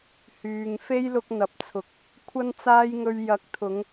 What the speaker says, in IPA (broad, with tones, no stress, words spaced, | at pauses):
hyː˨ŋ fe˥jlʊ˧k̚n̪ɐ˨p̚t͡sʰʊ˨k̚ | kʷʰɐ˥nt͡saː˥jŋɵ˧ɥ jɐ˨˥k̚t̪ʰʊ˨˧ŋ